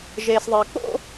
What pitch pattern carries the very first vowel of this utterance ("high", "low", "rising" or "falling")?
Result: low